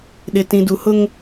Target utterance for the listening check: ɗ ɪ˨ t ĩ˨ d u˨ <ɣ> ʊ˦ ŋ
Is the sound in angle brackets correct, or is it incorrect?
incorrect